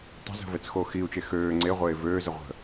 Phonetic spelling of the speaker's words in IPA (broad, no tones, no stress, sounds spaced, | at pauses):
tˤ ə̤ z ə̤ v ɛ t͡s x oː x iː u̯ t͡ʃ e x øː ŋ͡ǀ e ʁʷ eː v øː z ə ʁʷ ə̤